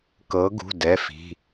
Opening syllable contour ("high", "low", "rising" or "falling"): rising